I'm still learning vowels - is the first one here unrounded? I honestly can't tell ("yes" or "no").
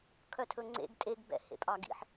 no